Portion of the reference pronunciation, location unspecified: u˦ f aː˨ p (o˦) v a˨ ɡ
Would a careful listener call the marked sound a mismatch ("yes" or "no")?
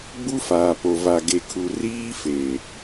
yes